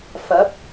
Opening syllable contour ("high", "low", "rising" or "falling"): rising